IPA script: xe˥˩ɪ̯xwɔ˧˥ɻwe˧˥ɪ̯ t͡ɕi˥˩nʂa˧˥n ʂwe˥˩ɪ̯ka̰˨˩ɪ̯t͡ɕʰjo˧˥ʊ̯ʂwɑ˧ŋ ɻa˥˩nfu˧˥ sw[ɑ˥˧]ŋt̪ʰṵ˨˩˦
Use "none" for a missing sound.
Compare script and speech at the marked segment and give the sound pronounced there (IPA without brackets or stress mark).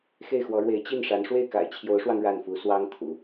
ɑ˥